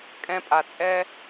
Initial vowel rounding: unrounded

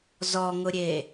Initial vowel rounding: rounded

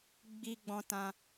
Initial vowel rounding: unrounded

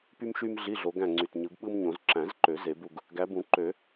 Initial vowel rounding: rounded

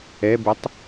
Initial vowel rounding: unrounded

